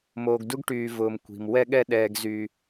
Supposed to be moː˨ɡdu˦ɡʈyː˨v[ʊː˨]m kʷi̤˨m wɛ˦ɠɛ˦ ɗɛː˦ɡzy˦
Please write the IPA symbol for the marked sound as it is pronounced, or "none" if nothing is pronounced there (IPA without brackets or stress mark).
ʊː˨